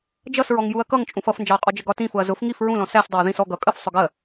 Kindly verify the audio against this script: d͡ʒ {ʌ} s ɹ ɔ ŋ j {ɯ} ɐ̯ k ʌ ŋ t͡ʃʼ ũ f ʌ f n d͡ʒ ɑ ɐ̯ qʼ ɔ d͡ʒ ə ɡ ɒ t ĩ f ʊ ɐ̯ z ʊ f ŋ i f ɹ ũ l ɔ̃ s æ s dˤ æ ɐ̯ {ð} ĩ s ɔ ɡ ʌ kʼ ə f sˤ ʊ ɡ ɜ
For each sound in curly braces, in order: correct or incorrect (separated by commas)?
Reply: correct, incorrect, correct